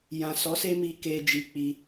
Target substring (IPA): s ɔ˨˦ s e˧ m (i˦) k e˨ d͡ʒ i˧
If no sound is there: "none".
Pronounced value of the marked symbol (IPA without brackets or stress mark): i˨